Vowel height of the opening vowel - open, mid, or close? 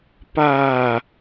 open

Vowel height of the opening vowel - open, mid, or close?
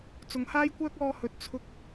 close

